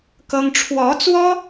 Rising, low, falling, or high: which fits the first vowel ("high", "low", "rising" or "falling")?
high